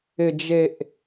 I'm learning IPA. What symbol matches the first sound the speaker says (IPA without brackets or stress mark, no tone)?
ɪ